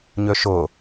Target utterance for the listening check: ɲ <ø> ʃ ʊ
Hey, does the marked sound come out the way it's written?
yes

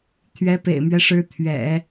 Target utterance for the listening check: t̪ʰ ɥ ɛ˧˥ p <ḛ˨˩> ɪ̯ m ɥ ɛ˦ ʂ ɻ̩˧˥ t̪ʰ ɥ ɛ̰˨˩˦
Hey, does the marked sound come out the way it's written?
yes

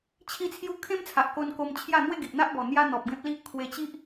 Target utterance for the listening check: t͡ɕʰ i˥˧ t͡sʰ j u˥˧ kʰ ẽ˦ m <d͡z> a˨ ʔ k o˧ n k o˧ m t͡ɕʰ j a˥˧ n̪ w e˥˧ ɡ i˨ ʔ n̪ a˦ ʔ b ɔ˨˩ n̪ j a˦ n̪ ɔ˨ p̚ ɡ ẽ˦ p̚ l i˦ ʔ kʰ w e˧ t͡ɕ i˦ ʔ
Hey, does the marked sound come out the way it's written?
no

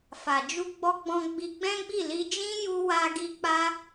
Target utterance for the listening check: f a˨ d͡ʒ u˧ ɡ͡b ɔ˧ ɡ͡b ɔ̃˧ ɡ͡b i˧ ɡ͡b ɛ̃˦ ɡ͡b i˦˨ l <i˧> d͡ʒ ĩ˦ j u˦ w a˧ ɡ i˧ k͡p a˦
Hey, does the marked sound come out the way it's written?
yes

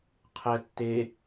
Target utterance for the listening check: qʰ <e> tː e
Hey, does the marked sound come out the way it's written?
no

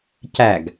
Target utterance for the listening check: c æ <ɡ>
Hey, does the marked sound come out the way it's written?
yes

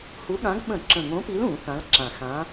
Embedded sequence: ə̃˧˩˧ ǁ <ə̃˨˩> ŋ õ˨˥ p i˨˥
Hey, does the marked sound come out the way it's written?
yes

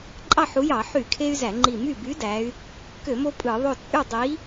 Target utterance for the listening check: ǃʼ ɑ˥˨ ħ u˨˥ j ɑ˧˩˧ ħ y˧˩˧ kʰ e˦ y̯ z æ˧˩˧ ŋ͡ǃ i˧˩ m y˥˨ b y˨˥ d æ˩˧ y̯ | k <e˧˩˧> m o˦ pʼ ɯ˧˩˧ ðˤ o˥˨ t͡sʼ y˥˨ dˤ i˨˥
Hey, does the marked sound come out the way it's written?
no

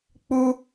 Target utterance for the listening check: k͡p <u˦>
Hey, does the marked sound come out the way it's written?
yes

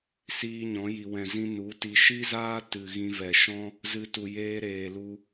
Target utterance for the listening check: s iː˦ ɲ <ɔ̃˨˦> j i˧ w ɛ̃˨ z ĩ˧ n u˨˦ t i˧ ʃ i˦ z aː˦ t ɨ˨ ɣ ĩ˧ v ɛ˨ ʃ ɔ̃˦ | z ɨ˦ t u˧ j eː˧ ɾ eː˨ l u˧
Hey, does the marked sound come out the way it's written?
yes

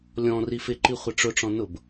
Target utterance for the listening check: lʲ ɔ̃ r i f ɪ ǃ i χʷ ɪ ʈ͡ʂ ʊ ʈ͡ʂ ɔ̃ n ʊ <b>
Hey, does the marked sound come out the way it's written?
yes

